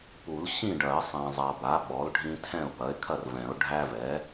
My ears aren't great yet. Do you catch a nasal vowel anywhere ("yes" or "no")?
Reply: yes